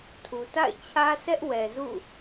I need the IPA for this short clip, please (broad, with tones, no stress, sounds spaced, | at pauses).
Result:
tʰ u˨ t a̰˦˨ ɪ̯ t͡ɕʰ ä˦ sʰ ɛ˦ ʔ w ɛ˨ z ṵ˦˨